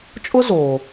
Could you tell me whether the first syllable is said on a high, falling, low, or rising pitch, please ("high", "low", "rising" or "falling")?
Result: high